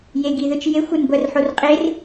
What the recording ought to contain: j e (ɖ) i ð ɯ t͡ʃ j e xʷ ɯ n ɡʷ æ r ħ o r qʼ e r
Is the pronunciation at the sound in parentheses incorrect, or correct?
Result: incorrect